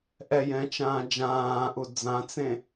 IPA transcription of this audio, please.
ʔɛjɛ̃ t͡ʃãːd͡ʒãːʔu d͡zãt͡sẽ

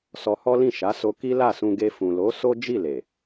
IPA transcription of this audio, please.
sɔ˧hɔ˦lĩ˦˨ ʃa˨˦so˧ ki˦la˦˨sũ˧ɡe˧ fũ˨lo˨˦ so˦ d͡ʒi˦˨le˨

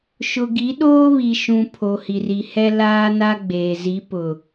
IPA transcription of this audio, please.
ʃʊ˨ɡi˨˦ ɗoː˦βi˨ʃũ˨ pʰo˨hi˨ri˨hɛ˦ laː˦na˦ ɡ͡beː˨zi˨˦pʊ˨

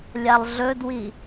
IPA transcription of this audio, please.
lʲalˠɮɵdwi

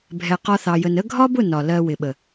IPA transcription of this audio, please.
bʱɛ˧qɒ˦θɑ˧jə˧n ə˦ ɡʱɒ˦bʊ˦˨ nɒ˨ lɜ˧ wɪ˨ɓə˨

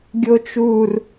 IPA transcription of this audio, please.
ɡʲot͡ʃur

